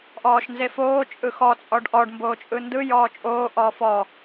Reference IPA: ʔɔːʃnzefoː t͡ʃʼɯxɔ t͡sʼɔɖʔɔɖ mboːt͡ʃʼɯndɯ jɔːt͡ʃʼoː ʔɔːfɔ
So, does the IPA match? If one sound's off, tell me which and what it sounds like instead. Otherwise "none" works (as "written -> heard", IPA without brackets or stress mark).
none